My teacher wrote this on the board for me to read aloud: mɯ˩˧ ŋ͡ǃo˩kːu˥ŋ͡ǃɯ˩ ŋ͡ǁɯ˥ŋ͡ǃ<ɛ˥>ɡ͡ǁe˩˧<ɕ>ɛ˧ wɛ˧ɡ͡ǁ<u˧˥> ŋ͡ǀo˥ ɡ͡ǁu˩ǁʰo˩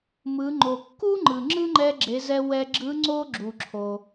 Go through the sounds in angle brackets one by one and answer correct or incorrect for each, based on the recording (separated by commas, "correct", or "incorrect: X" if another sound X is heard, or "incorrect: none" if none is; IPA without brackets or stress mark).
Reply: incorrect: ɛ˧, incorrect: z, incorrect: ɯ˧˥